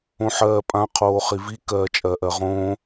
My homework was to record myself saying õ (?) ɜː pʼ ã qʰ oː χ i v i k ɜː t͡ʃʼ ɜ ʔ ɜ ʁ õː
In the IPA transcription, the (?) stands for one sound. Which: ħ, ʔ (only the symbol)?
ħ